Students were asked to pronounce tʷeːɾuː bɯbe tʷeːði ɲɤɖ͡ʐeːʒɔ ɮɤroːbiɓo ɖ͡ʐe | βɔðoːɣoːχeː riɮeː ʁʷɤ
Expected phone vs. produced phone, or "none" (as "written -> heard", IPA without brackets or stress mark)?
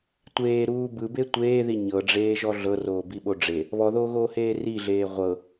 χ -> h